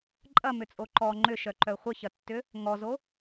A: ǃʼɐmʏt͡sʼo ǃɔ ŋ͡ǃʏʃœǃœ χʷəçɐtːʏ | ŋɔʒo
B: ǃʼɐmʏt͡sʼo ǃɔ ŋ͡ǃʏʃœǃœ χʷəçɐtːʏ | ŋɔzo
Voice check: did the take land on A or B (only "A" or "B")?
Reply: B